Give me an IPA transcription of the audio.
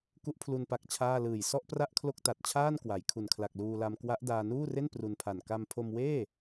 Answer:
k u˦˥ ʔ pʰ l u˧ n p a˦˥ k̚ t͡ɕʰ aː˥˩ l ɯː˨˩ j s ɔ˥˩ ʔ p r a˥˩ ʔ kʰ l o˥˩ k̚ t a˨˩ t̚ t͡ɕʰ aː˥˩ n k w a˩˦ j kʰ u˨˩ n kʰ l a˨˩ k̚ l uː˧ l a˧ m k w a˦˥ ʔ d aː˧ n uː˥˩ r e˥˩ n p r u˧ n pʰ a˨˩ n k a˧ m pʰ o˧ m w eː˥˩

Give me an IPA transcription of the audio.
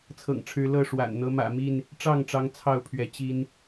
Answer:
t͡sʰ ɤ̰˨˩ ŋ ʈ͡ʂʰ ɻ̩˨˦ l ɤ˥˨ ʂ w a̰˨˩ n n̪ ɤ˨˦ m ä̰˨˩ m i˥˨ n | ʈ͡ʂ ɑ˥˨ ŋ ʈ͡ʂ ɑ˨˦ ŋ t͡sʰ ɑ˥˨ ʊ̯ pʰ ɥ ɛ˨˦ t͡ɕ i˦ n

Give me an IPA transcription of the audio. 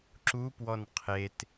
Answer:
ǁ u p w ɔ n qʰ e t

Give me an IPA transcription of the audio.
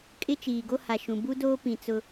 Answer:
kʼ ɪ˦ t͡ʃ iː˨ ɡ o˦ h a˨ ʃ ũ˨ b u˦ d oː˦ p ĩ˨ t͡s ʊ˦

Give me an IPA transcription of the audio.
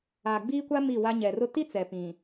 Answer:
aː˨ ɡ͡b iː˦ kʷ a˦ m i˦˨ w a˦ ɲ ɛ˨ r ʊ˦ t i˦ t͡s ɛ˨ p ĩ˨

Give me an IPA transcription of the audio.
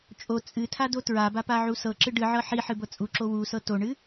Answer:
t͡ʃʼ o t͡sʼ ɨ tʰ a d o t ɹ a b a p a ʕ u s ɤ ǁ ɨ ɖ ɨ ʕ ɤ ħ i ħ ɨ b ɤ t͡sʼ u ǁ o w u s ɤ t o ɳ ɨ

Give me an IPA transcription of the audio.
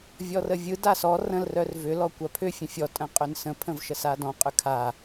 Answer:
vʲ ɔ r ə vʲ ɯ d a s ɔ r ə̃ l r œ r v ʏ l ɔ kʷ a pʰ ʏ fʲ ə̃ fʲ ɔ tʼ ə̃ qʼ ʏ n s ə̃ pʰ ə̃ v ʃ ə s a d ɔ̃ qʼ ʏ kʰ a

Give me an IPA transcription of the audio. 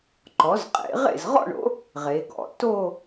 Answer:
ǃ ɔ˩˥ z qʼ ḛ˩˥ ʁ ḛ˥˩ z ʁ ɔ̰˥˧ ɳ o̰˩˥ | ʁ e˩˧ ɡ ɔ̰˩˥ t o˥˧

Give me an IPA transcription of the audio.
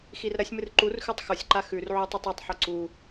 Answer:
x i r ɾ ɐ sʲ m ɨ r ǃ u r x ʉ tˤ x o sʲ ǃ a x ʉ r ʕ u tˤ ʉ tˤ u tˤ ħ o ǀ u

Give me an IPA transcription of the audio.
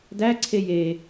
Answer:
d æ ǀʰ e j e

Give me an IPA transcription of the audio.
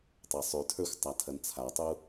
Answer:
tˤ ɛ sˤ ʉ tʰ ə˞ xʷ tˤ a tʰ ɐ n t͡sʰ a tˤ u

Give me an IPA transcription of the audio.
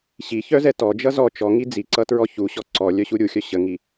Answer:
ɕ i ç œ z ɛ t ɔ d͡ʒ ʌ z ɔ t͡ʃ ɔ ŋ i d͡z i ǀ ʌ t ɹ ɔ ç u ɕ ɔ ǀ ɔ lʲ œ ɕ u ɾʲ u xʲ œ ɕ ə ŋ i

